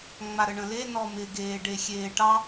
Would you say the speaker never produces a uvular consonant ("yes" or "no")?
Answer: yes